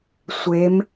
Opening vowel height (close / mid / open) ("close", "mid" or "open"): mid